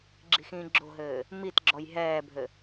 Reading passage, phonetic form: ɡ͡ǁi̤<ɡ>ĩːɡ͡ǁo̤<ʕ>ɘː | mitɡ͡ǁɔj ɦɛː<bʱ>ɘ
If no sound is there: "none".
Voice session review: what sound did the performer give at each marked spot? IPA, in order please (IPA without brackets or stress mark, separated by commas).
x, ɦ, bʱ